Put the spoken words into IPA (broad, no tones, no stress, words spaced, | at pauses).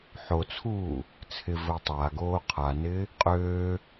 ħot͡sʰuː | t͡sʰɪvəu̯ tˤaɡoː qʰanɪː | qʼøː